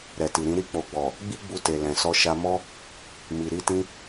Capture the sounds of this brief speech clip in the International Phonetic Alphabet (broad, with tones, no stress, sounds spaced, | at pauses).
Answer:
ɾ ɛ˨ t i˨ ɾ ĩ˧ ɾ i˧ k͡p o˨ ɡ͡b ɔ˨ | ɡ͡b i˦ ɡ͡b u˧ t e˨ l ɛ̃˨ s ɔ˧ ʃ a˧ m ɔ˦ | m i˨ ɾ i˧ t ĩ˧